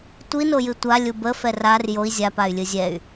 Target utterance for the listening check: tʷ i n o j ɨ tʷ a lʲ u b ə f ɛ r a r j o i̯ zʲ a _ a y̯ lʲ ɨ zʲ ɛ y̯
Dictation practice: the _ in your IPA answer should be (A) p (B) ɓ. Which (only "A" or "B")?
A